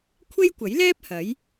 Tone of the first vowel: high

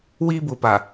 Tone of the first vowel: high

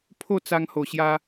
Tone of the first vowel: falling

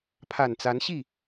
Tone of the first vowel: low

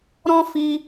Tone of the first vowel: high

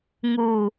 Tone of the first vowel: low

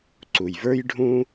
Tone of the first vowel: low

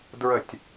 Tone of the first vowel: falling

